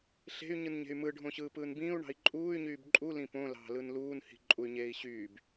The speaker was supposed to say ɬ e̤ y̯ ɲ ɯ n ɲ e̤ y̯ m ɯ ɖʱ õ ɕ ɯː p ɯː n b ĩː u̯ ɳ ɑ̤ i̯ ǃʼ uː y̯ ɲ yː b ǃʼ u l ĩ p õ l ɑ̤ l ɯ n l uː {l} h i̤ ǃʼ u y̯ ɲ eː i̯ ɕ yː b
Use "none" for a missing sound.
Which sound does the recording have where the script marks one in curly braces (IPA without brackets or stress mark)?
n